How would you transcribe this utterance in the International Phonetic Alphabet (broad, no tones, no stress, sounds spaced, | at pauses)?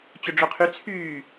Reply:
t͡ɕ ɵ ɖ͡ʐ ɵ qʰ y t͡sʰ yː